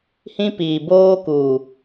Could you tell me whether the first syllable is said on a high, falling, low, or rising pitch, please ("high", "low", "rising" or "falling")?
high